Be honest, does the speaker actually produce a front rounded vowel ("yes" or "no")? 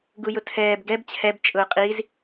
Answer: no